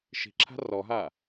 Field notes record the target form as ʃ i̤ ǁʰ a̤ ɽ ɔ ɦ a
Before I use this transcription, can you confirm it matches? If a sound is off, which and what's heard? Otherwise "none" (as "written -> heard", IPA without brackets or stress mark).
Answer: ɽ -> r